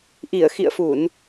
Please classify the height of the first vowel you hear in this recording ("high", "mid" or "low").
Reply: high